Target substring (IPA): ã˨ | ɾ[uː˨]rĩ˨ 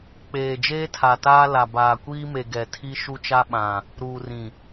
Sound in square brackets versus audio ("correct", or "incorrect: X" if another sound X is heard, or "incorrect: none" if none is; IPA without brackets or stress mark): correct